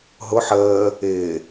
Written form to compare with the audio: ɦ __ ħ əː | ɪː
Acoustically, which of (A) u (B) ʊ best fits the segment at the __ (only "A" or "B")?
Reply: B